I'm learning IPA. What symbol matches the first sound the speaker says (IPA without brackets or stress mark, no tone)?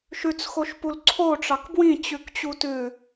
ʃ